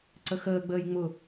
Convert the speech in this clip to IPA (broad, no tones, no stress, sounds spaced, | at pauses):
ǀ ə x əː ɡ͡b əː j ŋ͡m ʊ